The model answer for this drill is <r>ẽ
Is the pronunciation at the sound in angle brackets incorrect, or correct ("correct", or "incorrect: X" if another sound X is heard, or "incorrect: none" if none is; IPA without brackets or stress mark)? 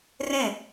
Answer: correct